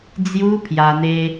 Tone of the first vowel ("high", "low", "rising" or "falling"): high